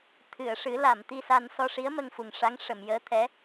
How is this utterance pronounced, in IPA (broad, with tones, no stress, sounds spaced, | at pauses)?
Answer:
t̪ʰ ɨ˨˩˨ ə̯ ʂ ɨ˨˩˦ l a˨˩˨ m t̪ i˧ s a˧ n s ɔ˧ ʂ i˧˥ ə̯ m ə˧ ŋ f u˨˩ ŋ ʂ a˧˥ ŋ ʂ ə˨˩˨ m j əː˧˥ t̪ʰ ɛ˧˥